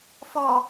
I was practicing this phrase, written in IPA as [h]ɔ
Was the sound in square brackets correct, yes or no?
no